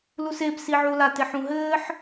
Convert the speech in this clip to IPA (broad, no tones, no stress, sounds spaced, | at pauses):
l u s e b s i ʕ u l a t e ħ ũ ɦ ɘː ħ